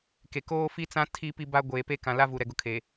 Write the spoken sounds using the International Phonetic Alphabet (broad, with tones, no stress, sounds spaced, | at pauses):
k e˨ k oː˦ f i˦ t͡s ã˦ tʰ i˦ p i˦ b a˦ ɡʷ eː˨ p e˦ k ã˨ l a˦ v u˨ ɾ ɛ˨ ɡ ʊ˨ kʰ e˨